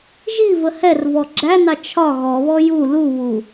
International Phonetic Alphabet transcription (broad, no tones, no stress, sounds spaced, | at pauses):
ʒ i v ə h ɛ r v ɔ ɡ͡ǁ æ n ɑ t͡ʃʰ ɒ ɣ ɔ β ɔ j u l u β u